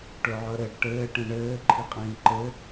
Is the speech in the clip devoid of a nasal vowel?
no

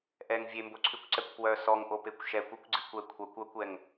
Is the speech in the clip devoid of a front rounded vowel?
no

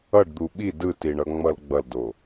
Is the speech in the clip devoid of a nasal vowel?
yes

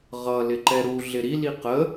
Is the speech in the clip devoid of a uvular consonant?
no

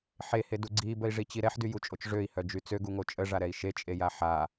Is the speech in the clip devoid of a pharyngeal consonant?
no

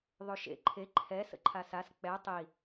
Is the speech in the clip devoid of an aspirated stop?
no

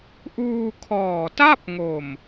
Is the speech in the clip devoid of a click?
yes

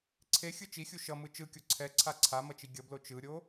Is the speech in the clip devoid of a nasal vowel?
yes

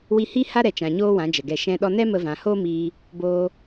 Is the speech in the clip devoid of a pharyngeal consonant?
yes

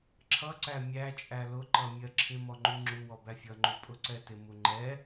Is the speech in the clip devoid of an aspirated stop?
no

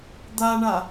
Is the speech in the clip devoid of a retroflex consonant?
no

